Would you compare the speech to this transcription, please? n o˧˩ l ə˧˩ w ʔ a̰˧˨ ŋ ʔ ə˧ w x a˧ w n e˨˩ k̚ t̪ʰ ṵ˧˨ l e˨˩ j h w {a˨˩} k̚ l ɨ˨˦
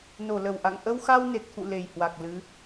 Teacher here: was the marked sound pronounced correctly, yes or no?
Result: yes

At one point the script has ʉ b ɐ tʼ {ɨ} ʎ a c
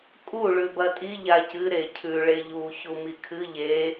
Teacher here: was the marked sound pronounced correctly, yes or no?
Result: no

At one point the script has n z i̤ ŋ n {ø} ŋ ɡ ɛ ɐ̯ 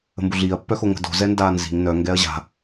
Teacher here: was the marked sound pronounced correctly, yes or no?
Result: no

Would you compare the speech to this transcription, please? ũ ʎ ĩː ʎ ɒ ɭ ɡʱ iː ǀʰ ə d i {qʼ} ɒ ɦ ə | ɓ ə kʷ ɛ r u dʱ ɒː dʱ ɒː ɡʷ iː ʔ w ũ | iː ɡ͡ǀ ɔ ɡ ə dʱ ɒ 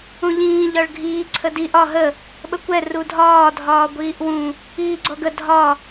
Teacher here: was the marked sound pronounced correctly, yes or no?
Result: no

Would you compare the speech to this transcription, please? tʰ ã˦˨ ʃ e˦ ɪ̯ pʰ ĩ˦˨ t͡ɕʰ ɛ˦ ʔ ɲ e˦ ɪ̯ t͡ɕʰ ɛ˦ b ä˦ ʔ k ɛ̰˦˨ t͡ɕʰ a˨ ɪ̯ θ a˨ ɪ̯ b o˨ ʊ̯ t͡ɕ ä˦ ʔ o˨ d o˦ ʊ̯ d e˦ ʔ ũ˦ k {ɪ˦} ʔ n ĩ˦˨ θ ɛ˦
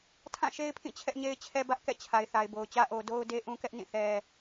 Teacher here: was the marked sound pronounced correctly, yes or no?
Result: no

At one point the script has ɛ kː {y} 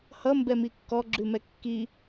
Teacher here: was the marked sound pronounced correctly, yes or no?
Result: no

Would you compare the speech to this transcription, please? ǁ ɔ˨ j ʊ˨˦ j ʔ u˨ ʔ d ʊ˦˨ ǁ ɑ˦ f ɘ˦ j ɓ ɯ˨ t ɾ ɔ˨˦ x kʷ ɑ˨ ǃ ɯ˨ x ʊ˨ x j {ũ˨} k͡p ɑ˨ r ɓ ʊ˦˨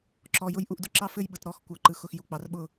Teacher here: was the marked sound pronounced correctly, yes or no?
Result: no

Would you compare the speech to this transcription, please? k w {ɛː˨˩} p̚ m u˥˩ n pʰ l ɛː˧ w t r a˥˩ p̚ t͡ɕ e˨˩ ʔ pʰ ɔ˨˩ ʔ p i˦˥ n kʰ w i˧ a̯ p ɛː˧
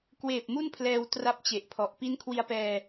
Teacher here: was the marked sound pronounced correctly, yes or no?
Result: no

